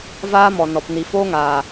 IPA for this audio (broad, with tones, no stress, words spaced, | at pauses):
vaː˦mɔ˨nɔ˨p ni˨foː˦ŋaː˨